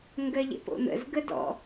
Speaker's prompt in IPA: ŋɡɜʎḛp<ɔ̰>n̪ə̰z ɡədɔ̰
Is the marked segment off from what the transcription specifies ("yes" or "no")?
yes